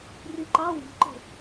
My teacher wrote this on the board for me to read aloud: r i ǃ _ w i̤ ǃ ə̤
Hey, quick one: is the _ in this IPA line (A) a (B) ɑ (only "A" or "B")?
B